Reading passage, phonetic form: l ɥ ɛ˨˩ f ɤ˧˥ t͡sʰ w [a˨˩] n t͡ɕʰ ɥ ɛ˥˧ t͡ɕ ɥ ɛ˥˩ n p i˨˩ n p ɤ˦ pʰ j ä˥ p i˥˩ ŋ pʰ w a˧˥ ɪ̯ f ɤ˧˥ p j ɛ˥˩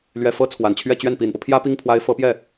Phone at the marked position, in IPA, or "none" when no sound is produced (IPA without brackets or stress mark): a˨˩